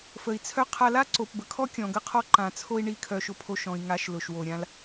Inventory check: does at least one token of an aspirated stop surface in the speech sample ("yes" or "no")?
yes